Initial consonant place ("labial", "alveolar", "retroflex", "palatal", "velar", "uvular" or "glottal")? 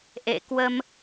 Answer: glottal